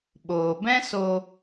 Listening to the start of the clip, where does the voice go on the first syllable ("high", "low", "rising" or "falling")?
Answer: low